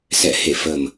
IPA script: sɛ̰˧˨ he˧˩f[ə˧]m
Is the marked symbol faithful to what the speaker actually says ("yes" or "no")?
no